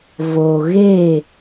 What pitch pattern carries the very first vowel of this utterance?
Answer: low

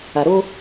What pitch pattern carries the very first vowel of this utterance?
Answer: low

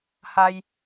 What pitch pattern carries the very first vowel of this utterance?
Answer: high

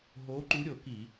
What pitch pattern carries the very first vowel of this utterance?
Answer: rising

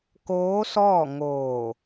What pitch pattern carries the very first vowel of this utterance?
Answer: rising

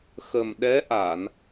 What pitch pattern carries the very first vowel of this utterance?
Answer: low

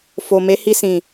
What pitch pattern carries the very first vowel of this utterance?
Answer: low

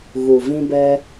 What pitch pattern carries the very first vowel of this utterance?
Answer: low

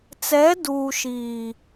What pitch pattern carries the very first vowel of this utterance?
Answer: rising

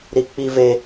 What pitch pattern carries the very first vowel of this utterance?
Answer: high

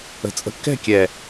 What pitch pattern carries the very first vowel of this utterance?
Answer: low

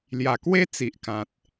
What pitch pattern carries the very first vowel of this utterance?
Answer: low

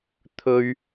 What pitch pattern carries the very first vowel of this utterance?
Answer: high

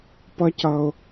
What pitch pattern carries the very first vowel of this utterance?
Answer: high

